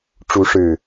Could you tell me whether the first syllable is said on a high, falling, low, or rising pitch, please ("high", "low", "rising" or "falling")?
rising